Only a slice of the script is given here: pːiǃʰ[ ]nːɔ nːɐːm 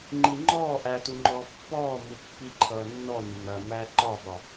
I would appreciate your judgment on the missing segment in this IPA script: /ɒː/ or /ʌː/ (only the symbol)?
ʌː